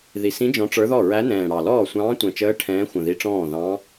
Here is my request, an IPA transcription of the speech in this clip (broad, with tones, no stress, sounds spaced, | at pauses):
ð i˨˩ s ĩ˧˥ d͡ʒ ɔ̃˧˥ ʈ͡ʂ ə˞˧˥ ð ɔ˥˩ ɹ æ˧˥ n ɛ̃ː˨˩ ɽ ɑ˨˩ l ɔː˥˩ sʷ ɑ̃ː˧˥ tʷ ɛ̃˨˩ t͡ʃ əː˧˥ ʈʰ ɛ̃ː˧˥ xʷ ə̃˨˩ ð i˧˥ ʈ͡ʂ ɔ̃ː˥˩ ð ɑ̃˧˥